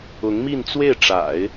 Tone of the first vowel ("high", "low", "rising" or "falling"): rising